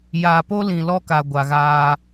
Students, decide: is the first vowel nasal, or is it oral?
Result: oral